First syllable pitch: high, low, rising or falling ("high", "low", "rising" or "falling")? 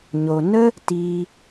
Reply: low